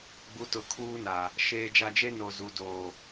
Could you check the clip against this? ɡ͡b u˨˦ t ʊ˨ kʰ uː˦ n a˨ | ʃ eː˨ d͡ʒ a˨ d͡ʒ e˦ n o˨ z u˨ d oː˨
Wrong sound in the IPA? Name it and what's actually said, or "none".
none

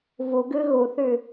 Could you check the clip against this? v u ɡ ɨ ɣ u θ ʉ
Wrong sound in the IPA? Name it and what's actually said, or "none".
none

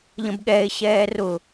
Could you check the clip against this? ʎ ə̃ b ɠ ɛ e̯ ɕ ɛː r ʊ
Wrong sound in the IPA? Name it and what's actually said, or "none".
none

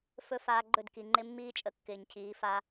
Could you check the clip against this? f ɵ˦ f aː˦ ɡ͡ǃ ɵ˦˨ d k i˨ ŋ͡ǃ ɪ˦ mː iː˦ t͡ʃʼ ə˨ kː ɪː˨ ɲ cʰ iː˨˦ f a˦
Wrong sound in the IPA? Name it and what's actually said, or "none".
none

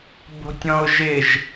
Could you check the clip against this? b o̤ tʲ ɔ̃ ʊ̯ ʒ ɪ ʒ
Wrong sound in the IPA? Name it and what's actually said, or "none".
none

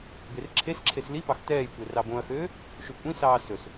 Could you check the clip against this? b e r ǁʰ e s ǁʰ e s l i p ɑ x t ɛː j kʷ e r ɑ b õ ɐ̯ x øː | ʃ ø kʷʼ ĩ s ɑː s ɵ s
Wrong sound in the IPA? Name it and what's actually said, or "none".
none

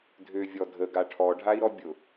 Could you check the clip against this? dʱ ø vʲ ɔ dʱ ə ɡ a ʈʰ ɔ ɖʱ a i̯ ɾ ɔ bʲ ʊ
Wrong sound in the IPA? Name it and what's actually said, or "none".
none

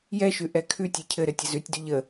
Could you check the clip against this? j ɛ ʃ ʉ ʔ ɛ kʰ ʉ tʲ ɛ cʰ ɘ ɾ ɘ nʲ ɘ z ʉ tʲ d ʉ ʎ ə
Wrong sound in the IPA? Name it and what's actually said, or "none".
nʲ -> tʲ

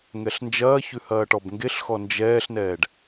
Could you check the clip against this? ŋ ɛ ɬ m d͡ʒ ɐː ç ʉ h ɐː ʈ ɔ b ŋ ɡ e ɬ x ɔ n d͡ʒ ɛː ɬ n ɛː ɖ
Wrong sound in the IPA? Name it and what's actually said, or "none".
m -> n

